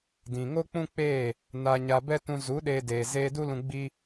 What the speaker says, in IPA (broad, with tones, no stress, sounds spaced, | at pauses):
d ĩ˨ ŋ o˦ k͡p ũ˦ k͡p eː˦˨ | n a˧ ɲ a˧ b ɛ˦ t ũ˧ z u˨˦ ɗ eː˧ d eː˨ z eː˧ d u˦ l ũ˧ ɡ͡b i˦